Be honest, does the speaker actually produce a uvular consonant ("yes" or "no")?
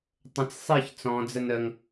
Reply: no